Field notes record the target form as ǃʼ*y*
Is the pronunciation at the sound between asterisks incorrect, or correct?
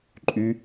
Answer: correct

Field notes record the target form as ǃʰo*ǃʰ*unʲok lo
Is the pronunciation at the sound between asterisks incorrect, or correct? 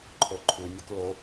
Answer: correct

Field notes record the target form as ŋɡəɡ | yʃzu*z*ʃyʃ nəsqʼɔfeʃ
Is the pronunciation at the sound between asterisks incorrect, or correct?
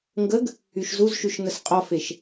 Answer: correct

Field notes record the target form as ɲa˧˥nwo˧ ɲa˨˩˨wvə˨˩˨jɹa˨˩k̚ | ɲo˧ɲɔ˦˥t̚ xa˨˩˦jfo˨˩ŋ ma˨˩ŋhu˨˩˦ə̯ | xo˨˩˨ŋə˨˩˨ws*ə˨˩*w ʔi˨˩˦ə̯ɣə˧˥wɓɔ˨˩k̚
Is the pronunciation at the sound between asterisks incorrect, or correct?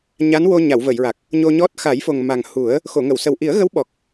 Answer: correct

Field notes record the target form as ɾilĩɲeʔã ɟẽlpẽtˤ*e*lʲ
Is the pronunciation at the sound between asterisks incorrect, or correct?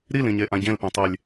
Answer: correct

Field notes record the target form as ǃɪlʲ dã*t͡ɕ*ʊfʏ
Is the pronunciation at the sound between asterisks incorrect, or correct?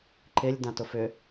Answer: incorrect: t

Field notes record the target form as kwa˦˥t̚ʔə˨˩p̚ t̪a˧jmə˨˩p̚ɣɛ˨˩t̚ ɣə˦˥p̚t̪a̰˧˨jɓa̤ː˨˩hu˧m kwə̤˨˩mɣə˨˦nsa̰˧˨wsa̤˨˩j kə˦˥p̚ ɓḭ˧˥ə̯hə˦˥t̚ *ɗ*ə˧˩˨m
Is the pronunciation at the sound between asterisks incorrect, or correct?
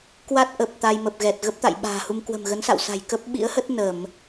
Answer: incorrect: n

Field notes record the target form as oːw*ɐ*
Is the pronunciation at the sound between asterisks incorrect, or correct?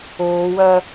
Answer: correct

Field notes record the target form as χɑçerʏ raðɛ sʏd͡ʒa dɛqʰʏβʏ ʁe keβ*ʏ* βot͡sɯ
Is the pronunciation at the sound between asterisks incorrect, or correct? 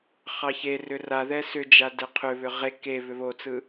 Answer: correct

